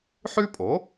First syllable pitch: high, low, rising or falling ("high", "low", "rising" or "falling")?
high